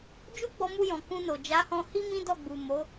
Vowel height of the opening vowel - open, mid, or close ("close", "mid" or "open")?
close